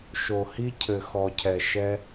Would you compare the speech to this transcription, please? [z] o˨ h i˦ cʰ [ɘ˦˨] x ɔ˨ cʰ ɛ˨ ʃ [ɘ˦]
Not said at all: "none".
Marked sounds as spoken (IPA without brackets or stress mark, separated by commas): ʃ, ɘ˨, ɛ˦